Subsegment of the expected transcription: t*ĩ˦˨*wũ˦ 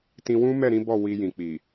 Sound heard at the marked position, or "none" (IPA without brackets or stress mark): ĩ˧